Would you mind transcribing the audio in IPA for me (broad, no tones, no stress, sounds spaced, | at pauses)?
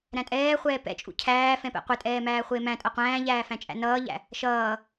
ɾ æ̃ tʼ ɛː χʷ ɛː p ɛ̰ t͡ʃʼ ṵ cʰ æː f ɛ̃ p ɛ̰ qʷ ɪ tʼ ɛː m æː χʷ ɪː m æ̃ tʼ ʌ qʷ æ̃ː ʎ æː f æ̃ t͡ʃʼ æ̰ n ʌː ʎ æ̰ | ʃ ʌː